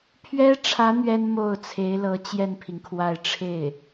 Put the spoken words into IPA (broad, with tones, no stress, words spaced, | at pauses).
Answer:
pʰɥɛ˥ʈ͡ʂʰä˧˥ n̪ɥɛ˥nmo˥˩ʊ̯t͡sʰe˧˥ɪ̯lɤ˧˥ t͡ɕjɛ˥˩npʰi˩ŋkʰwa˥˧ɪ̯ ʈ͡ʂʰe˥˩ɪ̯